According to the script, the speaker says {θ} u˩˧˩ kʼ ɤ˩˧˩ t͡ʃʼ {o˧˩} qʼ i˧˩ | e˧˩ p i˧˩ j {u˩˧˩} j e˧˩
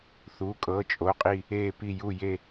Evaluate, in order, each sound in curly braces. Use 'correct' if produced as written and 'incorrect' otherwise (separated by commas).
correct, incorrect, incorrect